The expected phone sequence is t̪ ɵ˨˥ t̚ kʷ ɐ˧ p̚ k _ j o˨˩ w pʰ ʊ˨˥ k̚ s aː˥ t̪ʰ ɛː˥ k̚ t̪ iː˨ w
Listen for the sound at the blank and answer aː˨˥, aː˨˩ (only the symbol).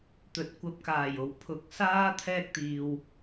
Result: aː˨˩